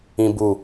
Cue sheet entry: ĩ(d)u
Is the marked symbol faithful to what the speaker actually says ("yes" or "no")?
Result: no